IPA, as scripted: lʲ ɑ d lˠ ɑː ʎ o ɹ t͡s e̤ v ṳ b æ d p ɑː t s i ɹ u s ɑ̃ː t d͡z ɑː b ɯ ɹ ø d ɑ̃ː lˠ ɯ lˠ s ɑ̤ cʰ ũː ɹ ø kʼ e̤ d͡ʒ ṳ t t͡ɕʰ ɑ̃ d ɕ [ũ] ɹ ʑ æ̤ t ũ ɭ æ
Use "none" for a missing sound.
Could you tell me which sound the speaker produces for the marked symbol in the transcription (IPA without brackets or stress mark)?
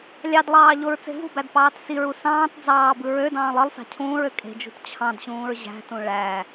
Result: ũː